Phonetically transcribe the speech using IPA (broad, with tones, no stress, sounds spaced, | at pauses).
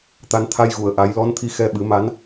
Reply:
t̪ a˧ n t̪ʰ a˧ j ɣ u˨˩˨ ə̯ ʔ a˨˩˦ j l ɔ˧˥ n t̪ʰ i˧ x ɛ˧ ɓ ɨ˨˩˦ m a˧˥ n